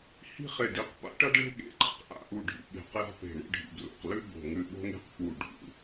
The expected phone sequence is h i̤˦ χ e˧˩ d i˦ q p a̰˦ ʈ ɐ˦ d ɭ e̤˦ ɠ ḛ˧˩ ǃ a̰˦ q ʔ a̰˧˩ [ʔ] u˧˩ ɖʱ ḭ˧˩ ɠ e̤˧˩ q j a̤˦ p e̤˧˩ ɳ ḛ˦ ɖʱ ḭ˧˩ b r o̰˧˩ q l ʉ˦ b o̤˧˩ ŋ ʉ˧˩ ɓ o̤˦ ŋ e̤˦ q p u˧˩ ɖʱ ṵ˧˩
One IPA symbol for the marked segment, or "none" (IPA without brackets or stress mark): ʔ